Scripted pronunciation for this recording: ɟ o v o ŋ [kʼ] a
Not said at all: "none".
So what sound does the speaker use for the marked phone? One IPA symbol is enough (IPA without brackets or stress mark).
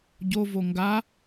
ɡ